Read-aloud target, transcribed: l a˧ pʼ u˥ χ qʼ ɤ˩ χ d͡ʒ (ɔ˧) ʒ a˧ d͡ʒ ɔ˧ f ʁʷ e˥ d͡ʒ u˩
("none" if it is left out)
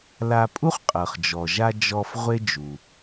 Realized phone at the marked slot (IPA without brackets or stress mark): ɔ˩